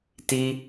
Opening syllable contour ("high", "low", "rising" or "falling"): high